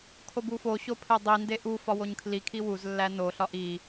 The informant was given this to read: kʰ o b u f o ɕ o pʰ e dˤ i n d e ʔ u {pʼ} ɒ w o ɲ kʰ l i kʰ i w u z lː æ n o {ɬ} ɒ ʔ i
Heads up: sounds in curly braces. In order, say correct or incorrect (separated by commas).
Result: incorrect, correct